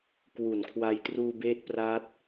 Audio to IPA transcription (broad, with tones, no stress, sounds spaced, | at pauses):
k w u˨˩ n kʰ w a˧ j t r uː˧ b eː˦˥ t̚ p r aː˦˥ t̚